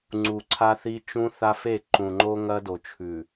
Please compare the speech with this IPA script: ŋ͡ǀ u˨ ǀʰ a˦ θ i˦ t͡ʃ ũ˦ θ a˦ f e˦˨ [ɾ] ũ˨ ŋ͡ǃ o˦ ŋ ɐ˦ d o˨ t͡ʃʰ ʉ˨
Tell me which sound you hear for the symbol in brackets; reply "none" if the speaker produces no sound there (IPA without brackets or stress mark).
ǃ